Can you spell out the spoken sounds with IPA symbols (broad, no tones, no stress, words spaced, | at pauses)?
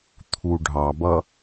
t̪ʰuɖʱɑbʌ